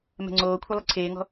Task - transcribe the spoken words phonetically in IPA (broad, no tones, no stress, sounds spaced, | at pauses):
m ɛ̤ ŋ͡ǀ oː kʷʰ ɘ lˠ ɘ ǀʰ eː ŋ ɔ̤